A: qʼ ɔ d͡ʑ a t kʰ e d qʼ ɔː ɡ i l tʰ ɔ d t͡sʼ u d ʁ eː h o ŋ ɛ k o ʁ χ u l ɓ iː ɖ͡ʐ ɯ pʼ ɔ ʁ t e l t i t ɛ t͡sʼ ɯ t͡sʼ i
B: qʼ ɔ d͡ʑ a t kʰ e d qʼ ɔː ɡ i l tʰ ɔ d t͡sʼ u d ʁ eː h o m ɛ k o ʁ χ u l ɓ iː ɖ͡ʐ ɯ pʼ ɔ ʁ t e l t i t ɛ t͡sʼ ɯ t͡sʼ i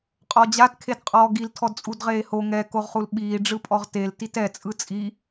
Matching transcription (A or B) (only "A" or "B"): A